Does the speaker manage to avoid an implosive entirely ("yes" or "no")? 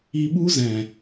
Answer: no